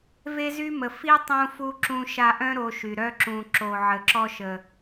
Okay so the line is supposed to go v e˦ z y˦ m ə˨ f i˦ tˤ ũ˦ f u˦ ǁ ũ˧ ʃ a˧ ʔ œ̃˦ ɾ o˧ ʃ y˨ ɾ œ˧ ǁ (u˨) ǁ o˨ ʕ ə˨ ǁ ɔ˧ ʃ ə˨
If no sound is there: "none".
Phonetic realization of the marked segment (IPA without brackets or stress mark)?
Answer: ũ˨